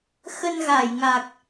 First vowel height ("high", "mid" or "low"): mid